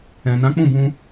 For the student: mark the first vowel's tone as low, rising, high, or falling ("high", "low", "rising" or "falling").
low